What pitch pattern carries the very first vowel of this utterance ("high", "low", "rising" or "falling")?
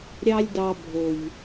high